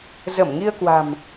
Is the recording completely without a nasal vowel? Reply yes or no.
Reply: yes